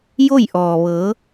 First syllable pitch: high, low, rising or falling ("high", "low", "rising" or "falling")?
falling